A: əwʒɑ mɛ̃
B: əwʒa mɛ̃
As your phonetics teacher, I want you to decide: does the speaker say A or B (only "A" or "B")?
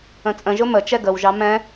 A